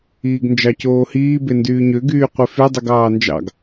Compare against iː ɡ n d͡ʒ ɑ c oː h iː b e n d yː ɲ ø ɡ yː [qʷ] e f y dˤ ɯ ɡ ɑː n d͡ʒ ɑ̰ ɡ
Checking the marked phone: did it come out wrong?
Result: no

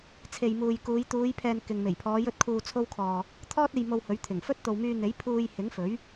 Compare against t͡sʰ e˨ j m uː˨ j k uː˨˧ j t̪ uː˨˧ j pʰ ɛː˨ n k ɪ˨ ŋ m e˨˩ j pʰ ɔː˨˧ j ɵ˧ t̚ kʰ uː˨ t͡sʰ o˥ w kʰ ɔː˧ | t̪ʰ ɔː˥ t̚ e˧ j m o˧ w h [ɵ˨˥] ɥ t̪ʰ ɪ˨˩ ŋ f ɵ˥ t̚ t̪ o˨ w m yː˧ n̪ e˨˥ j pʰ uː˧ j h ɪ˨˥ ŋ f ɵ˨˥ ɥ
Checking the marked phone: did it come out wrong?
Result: no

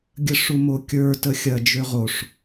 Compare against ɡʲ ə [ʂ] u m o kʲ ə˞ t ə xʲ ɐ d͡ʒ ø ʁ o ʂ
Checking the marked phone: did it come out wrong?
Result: no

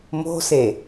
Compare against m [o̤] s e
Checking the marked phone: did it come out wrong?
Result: no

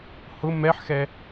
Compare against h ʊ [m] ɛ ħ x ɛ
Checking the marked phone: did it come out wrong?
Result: no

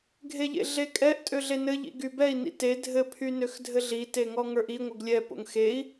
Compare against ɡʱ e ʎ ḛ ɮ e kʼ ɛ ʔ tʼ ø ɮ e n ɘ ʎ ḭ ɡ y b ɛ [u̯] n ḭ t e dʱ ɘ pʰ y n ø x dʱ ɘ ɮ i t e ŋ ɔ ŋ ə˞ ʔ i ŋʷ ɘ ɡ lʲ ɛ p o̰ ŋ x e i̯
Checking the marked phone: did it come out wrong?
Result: yes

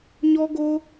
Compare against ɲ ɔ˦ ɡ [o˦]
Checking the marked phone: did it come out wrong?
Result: no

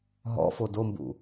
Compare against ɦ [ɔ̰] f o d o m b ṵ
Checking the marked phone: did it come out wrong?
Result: no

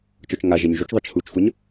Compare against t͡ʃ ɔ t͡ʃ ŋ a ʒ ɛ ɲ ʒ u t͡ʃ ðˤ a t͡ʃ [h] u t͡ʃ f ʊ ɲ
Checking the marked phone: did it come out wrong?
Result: no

